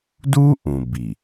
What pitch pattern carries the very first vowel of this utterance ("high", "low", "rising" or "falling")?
high